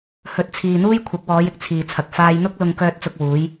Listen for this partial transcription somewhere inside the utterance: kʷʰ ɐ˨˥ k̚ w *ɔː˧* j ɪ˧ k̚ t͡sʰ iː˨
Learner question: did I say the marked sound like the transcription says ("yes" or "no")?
no